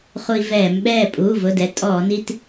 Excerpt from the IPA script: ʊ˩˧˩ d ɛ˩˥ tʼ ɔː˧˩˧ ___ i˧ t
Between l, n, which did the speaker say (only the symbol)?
n